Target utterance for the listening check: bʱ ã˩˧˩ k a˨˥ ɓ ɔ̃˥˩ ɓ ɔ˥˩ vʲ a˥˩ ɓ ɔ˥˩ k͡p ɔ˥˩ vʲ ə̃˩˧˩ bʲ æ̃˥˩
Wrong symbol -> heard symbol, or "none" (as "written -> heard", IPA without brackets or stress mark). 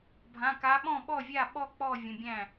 none